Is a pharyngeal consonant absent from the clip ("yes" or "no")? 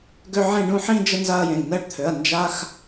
no